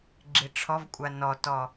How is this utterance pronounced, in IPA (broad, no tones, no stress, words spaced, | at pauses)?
ɡ͡ǁiʈ͡ʂʰɔvkʷʼa nɔtɔ